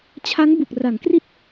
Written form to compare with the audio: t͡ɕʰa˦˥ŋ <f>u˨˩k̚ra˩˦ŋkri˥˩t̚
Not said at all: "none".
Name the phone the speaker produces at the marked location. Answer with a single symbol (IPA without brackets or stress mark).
b